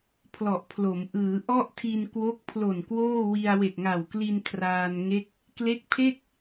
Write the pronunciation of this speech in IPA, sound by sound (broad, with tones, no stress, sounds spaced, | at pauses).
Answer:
pʰ l ɔ˨˩ ʔ pʰ l o˩˦ m ʔ ɯː˩˦ ʔ ɔ˥˩ ʔ tʰ i˧ n k w o˦˥ k̚ pʰ l o˨˩ n k w oː˥˩ w i˧ a̯ w e˨˩ k̚ ŋ a˨˩ w k l i˧ n kʰ r aː˧ n ŋ e˦˥ k̚ | k l e˦˥ k̚ pʰ e˥˩ k̚